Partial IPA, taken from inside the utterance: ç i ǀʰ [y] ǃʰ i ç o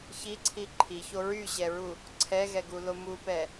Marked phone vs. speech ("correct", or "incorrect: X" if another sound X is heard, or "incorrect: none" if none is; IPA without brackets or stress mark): incorrect: i